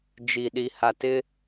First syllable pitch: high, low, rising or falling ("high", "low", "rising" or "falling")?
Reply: low